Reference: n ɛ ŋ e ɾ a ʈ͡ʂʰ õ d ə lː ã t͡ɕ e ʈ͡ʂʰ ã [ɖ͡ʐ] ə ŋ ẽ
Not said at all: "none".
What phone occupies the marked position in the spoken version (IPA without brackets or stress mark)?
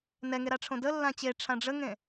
ɖ͡ʐ